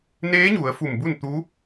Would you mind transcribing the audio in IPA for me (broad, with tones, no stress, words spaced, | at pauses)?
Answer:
neː˧˥ɲu˩˧ə̯ fu˧˩mbu˥˨n t̪u˧˥